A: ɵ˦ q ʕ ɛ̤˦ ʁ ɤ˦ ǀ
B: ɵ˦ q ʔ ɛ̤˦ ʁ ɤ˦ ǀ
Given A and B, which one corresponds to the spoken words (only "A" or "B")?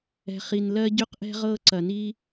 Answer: B